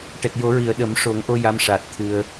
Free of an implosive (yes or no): no